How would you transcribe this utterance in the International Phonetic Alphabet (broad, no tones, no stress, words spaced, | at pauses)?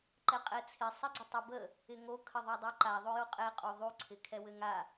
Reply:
ǃɛqʼɛt͡sʰɪ sˤɛɡ͡ǀɪtˤɪbə | ɪŋo kʰəðˤudˤoǃa ðˤojoqʼɛ qʼuðˤu ǀʰɪkʰɛwɘŋa